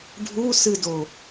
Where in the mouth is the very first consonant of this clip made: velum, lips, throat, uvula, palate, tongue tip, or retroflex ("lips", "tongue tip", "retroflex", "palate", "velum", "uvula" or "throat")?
retroflex